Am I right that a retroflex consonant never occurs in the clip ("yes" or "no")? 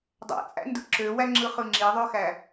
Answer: yes